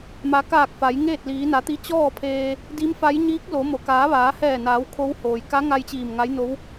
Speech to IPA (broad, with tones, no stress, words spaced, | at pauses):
ma˩˧kaː˧˩k̚ fa˩˧jŋeː˥˨t̚ liː˩˧na˩˧t̪i˧˥ t͡ɕɔː˥˨ pʰeː˧ | di˧˥mfa˧˥j ɲiː˧˥k̚lo˩˧ mo˩kaː˩˧ ʋaː˩˧hɛː˧˩naː˩˧w kʰo˧˥whoː˩j ka˧˥ŋa˧j t͡ɕiː˧˩mŋa˧˥jno˧˥w